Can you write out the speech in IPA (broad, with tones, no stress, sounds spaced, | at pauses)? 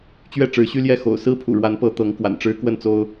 t͡ɕ ɥ ɛ˥˨ ʈ͡ʂ ɻ̩˨˦ ɕ y˦ l j ɛ˥˨ x o̰˨˩ ʊ̯ s ɹ̩˦ pʰ ṵ˨˩ ɻ w a˨˦ n p ɤ˨˦ t̪ ɤ˨˦ ŋ k w a̰˨˩ n ʈ͡ʂ ɻ̩˦ k w ə˥˨ n t͡s o˦ ʊ̯